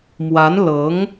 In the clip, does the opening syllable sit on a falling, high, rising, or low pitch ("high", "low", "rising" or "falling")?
rising